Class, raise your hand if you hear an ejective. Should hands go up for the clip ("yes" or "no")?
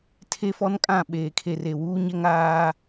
yes